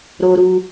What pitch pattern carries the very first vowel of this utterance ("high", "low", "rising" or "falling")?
high